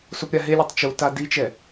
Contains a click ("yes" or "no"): no